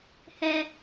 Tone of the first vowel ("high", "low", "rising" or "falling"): high